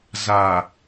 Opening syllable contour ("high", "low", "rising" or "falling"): low